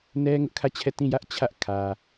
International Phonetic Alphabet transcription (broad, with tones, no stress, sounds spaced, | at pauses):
n ɛ˦ ŋ ʊ˦ ʔ kʰ ä˦˨ t͡ɕʰ ɛ˦˨ t ĩ˦˨ j ä˦ ʔ t͡ɕʰ ä˦ ʔ kʰ ä˨